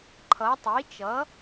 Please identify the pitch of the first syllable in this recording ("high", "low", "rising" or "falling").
rising